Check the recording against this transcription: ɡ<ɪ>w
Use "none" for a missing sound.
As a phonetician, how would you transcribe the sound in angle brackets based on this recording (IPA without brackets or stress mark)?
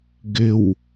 ɪ